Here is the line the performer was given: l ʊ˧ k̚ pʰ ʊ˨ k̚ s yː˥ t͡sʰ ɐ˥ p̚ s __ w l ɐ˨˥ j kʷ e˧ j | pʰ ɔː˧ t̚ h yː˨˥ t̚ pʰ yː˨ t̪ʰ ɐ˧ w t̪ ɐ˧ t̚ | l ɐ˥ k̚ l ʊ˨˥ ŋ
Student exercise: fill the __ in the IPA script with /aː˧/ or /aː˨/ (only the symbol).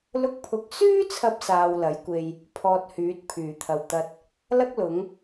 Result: aː˧